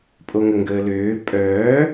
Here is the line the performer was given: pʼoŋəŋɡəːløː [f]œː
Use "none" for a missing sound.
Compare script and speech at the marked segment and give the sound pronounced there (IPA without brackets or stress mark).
pʼ